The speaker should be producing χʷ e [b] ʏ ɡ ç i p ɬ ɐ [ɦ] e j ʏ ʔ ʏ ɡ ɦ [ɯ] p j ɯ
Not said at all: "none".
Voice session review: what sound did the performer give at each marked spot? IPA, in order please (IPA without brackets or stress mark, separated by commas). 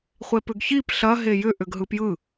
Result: p, ɦ, ɯ